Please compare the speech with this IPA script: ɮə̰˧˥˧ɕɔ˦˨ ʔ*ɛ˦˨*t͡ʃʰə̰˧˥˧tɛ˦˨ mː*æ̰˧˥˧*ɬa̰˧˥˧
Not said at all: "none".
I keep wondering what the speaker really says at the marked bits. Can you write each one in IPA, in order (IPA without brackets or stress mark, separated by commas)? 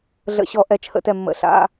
ɛ˦˨, ə̰˧˥˧